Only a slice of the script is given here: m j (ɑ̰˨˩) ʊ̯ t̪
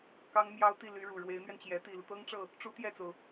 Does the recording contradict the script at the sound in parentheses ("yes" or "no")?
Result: yes